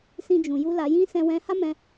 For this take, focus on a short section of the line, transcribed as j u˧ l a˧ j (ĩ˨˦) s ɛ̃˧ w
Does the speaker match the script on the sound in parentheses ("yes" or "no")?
no